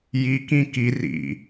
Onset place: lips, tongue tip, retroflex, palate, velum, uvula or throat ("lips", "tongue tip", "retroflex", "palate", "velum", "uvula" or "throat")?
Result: palate